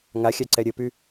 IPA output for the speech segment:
ŋ a xʲ a ǀ ɛ ɾʲ ə p y

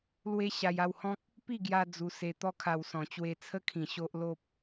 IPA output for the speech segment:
l w e˦ ɕ a˧ j a˥˧ w h ɔ̃˦ k̚ | p i˥˧ ɡ j a˧ d͡z u˧ s e˧ t̪ ɔ˦ kʰ a˧ w s ɔ̃˨˩ t͡ɕ w e˧ t͡sʰ ə˦ kʰ ĩ˨˩ ɕ o˦ ʔ l o˦ p̚

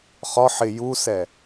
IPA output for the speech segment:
χ ɒ ħ ɪ j u s ɛ

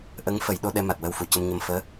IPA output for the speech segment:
ʔ ə˧˥ ŋ f ə˨˩˦ j ɗ o˧ ɗ ɛ˧ m a˨˩ t̚ w ə˧ w f u˨˩˨ c ə˧ m ɲ ə˧ m f əː˧˥

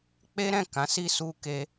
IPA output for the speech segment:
k͡p e˦ ɾ ɛ̃˦˨ k ã˨˦ s i˧ s u˦ k e˦

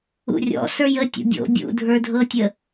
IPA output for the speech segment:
ṵ rʲ ɔ̰ s ə˞ j ə tʲ o̰ bʲ o̰ bʲ ṵ dʱ ə˞ dʱ ɤ tʲ ə

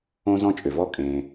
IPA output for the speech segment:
õ˥ z ɔ̃˥ t͡ʃʼ ʏ˩ v ɔ˥ kʼ ẽ˩

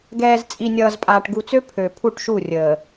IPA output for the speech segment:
ɡ ɛː˨ z t͡sʼ i˨ nʲ ʌː˨ z pʼ aː˨ ʈ ɡ u˨ t͡s ø˦ pʰ ø˨ pʰ u˦˨ ʈ ʃ u˦˨ rʲ əː˨

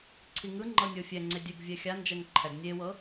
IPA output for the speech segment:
ǀʰ i ŋ ɯ ŋ͡ǃ ɤ nʲ o fʲ ɛ ŋ͡ǀ e dʲ ɛ ɡ vʲ ɛ xʲ a n d͡ʒ ɛ ŋ ǃʰ ɛ ɡ nʲ e w ɤ

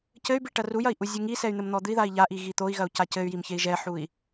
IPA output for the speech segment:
c ɘ y̯ b i ʈ ɐ r u j ɐ i̯ ʔ u zʲ u ŋ i s ɛ y̯ n̪ ɘ m n̪ ɔ d̪ ɨ i̯ ð a i̯ ʎ a ʔ i ɣ i t̪ o i̯ ɣ ɐ u̯ c a c ɘ y̯ j i m ç e i̯ ʒ ɛ ħ u i̯

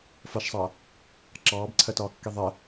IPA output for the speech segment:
f ʌ ʃ sˤ ʌː | ǁ ɑː b ǀʰ ɜ t ɒː kː i ðˤ ɜ

